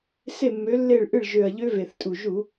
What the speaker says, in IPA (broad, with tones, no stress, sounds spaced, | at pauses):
s e˥˩ mː ø˨˥ lː e˥˩ ɭ ʔ ɨ˥˩ ɭ ʒ ø˨˩ ɐ̯ ʎ ø˦˥ v e˨˩ θ tʼ u˨˩ ʒ u˧˩˧